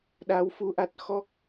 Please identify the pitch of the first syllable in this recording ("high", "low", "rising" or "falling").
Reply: rising